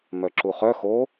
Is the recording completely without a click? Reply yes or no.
no